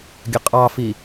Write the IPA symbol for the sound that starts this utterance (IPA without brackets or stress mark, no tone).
ɡʲ